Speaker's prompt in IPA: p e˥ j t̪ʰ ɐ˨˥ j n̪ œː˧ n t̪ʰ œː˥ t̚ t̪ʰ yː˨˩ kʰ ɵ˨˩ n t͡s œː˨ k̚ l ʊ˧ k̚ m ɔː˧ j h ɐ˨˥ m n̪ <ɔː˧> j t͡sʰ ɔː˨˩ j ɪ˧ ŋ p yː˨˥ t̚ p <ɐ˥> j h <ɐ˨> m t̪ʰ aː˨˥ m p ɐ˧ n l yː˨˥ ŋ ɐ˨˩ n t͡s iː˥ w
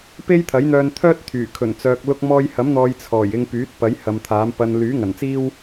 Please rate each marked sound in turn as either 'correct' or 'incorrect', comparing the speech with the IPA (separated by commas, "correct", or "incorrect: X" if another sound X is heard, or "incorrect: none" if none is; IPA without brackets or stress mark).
incorrect: ɔː˨, incorrect: ɐ˨˥, correct